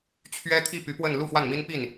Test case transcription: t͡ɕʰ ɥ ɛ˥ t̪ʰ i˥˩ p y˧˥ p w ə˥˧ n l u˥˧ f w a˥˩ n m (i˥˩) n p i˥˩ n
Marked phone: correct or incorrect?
incorrect: i˥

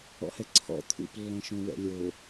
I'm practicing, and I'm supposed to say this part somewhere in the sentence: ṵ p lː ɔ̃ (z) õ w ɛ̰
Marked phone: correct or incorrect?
incorrect: ʃ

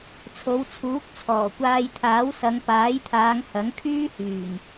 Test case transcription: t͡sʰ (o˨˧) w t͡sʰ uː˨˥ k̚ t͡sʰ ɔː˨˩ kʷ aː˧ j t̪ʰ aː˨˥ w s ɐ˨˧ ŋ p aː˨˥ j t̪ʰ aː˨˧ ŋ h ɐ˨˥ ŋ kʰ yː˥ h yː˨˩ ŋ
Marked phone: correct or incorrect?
correct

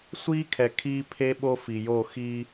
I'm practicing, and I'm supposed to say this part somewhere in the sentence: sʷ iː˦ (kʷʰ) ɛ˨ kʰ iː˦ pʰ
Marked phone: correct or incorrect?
incorrect: kʰ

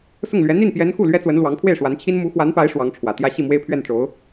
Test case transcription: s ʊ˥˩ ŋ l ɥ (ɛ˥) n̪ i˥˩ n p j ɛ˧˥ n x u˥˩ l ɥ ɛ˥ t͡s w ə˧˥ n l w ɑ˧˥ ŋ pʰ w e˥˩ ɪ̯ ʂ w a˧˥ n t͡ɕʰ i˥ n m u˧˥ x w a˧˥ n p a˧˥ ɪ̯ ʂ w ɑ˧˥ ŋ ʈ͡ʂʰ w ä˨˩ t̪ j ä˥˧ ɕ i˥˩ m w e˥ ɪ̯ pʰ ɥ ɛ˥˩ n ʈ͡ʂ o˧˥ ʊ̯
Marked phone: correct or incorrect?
incorrect: ɛ˧˥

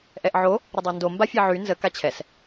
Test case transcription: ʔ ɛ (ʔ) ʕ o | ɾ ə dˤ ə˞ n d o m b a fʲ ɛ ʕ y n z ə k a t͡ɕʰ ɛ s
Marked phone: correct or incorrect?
correct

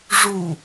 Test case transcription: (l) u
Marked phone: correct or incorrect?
incorrect: ʐ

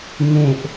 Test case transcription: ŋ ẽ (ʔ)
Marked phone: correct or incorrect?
correct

